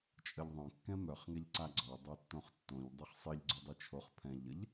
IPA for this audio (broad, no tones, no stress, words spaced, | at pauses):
t͡ʃʼəʎðˤœ̃ kːɛ̃mœχ ŋɛʎǀaɡ͡ǀɔ dˤɛtːõχtːõʎ dˤyχsˤiʎɡ͡ǀudˤi t͡ʃʰoχ pʰɛ̃ʎəʎ